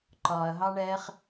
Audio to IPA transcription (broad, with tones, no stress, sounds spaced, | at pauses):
ǃ ɒː˨ ɐ̯ ɦ ɑ˦ ɳ ɛː˦ χ